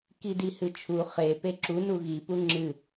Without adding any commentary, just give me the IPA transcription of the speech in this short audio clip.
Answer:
k i d i h ɨ t͡ʃʰ u χ e p e ǁ u n u ɣ i p u ŋ͡ǁ ɨ

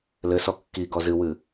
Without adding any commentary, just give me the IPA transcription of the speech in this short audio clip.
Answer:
l ɘ s ɔ kː i ɡ ɔ z ɨ w ɨ

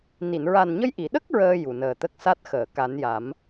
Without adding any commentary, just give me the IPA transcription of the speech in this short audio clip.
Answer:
n i˨˩˨ n ɹ a˨˩ n ɲ ə˧ j ʔ i˨˩˨ ɗ ə˦˥ k̚ ɹ əː˧ j u˨˩ n əː˨˩ t̪ ə˦˥ k̚ s a˦˥ t̚ x əː˨˩˨ k a˨˩˦ n j a˨˩˦ m

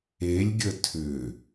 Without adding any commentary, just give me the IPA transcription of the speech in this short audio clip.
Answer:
e lʲ ɡʲ ə tʰ ʏ

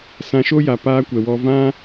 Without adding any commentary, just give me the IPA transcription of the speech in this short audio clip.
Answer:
s ã˧ ʃ o˦ j a˨ p aː˦ kʷ ɛ˨ w ɔ˧ v ã˦

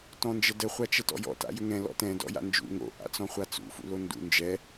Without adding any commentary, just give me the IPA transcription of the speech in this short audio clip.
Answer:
t ɔ̃ n d͡ʒ ə d ə χʷ a t͡ʃ ə t ɔ̰ j ɔ̰ t a̰ j ʏ ŋ ɛ̃ l ɔ̰ t ɛ̃ d ɔ̰ j a̰ n d͡ʒ ṵ ŋ o̰ ʔ a̰ t͡s ɔ̃ χʷ a t͡s ṵ f ṵ l o n d ṵ n d͡ʒ ɛ

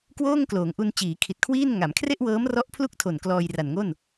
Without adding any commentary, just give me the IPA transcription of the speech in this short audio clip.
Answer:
k w oː˥˩ ŋ k l oː˩˦ ŋ ʔ u˧ n t͡ɕ iː˩˦ kʰ i˨˩ t̚ kʰ w iː˥˩ n ŋ a˩˦ m kʰ r e˥˩ ʔ w ɤː˦˥ m r ɔ˦˥ ʔ pʰ l u˥˩ k̚ tʰ o˨˩ n k l ɔː˧ j r a˨˩ n ŋ o˥˩ n

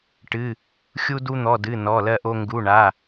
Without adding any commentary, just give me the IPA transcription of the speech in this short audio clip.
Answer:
ʈ ɨ˩˧˩ | xʲ u˧ d u˧ n̪ ɔ˩˧˩ d ɨ˩˧˩ n ɔ˩˧˩ l ɜ˧ ʔ o˧ ŋ ɡ u˩˧˩ ɳ a˩˧˩

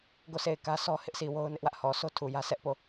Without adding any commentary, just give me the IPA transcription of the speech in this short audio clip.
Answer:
ɡ o˦˨ s e˦˨ ɪ̯ k ä˦ sʰ ɔ˦ h ɪ˦ ʔ sʰ i˨ w o˦ ʊ̯ n ɪ˦ ʔ w ä˦ ʔ h ɔ˨ s o˦ tʰ u˨ j ä˦ s ɛ˦ ʔ p o˦˨

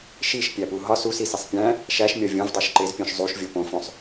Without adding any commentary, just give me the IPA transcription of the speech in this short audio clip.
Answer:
ʃ i ʃ pʲ æ p u ɦ ɒ s u s i s i sˤ pʲ æ̃ | ʃ æ ʃ mʲ ɒ vʲ õ v dˤ o ʃ ǃ e z pʲ õ ʃ zˤ u ʃ vʲ o p õ f õ sˤ

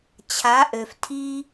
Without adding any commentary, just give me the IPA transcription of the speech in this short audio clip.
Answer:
t͡ɕʰ a˨˦ ʔ ø˨ f tʰ i˦

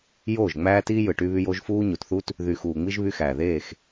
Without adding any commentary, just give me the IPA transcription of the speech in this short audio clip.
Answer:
j oː˦˨ ʒ ŋ͡m æː˦ t iː˦ j ɯ˨ ʈ y˦ β y˦ j o˦ ʒ f uː˦ ɲ u˨ t θ u˦ t | ð y˨ x uː˨ ŋ͡m i˦ ʒ β y˦ x æː˨ ð eː˦˨ x

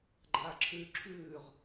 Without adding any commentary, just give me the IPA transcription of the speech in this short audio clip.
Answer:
ɡ͡ǃ aː ǁʰ ʉː ǁʰ ʉː ʁ

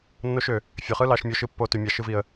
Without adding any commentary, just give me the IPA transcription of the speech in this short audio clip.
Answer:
nː o˦ ʃ ø˩ | fʲ ø˩ χ ɯ˦ l ɑ˨ ʃ mʲ o˨ ʃ ɯ˨ pː o˨ t y˩ mʲ ɑ˩ ʃ ɯ˨ v i˩ ə̯

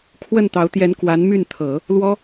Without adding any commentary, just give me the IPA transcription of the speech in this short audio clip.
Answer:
kʰ w ə˥˩ n t̪ ɑ˧˥ ʊ̯ t̪ j ɛ˧˥ n k w a˧˥ n m y˥˩ n t̪ʰ ɤ˨˩˦ | l w ɔ˥

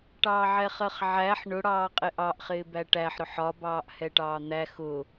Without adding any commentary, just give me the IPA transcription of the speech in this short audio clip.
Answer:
ʈ ɑː ʕ ɛ χ ɜ χ ʕ æ ħ ɳ ʊ ɽ ɑː qʼ ɪ ʔ ɑ ʔ χ ɪː b æ ʈ æ ħ ɾ ʊ ħ ɒ b ɑː ʔ h ɛ ʈ ɑː n̪ æ x ʊ

